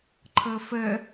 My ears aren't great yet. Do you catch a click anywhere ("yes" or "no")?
yes